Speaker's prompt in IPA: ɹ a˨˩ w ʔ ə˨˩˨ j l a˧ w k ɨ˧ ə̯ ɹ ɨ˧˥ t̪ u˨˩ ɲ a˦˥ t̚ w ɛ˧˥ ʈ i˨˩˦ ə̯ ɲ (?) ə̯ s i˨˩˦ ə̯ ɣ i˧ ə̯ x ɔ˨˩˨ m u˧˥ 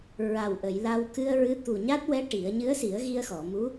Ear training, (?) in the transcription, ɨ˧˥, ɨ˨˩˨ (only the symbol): ɨ˧˥